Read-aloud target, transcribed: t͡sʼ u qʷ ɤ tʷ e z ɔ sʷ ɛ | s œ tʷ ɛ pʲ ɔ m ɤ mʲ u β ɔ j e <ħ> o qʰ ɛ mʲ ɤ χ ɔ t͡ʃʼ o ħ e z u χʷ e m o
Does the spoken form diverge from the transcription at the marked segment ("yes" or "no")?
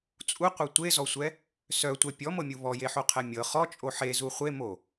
no